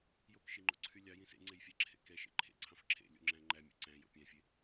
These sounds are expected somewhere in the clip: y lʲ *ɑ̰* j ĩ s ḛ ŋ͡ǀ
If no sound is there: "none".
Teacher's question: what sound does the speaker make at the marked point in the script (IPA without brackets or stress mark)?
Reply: ɑ